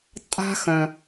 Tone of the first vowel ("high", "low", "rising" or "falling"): high